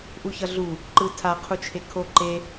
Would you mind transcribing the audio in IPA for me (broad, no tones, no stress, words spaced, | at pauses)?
ʔuçʌɮu | ǃɯtʰa qʰut͡ʃʰekʰo ǃe